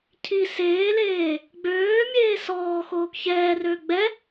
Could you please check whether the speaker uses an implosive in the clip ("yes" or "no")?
no